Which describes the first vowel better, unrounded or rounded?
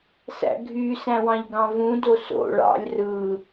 unrounded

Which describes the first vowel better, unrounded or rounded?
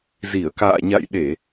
unrounded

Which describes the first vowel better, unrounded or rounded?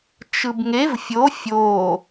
unrounded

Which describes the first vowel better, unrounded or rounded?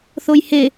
rounded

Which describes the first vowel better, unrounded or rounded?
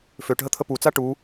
rounded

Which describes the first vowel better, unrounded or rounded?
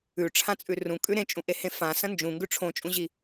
rounded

